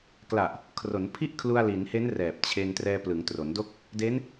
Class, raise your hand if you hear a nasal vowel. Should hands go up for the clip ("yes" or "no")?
no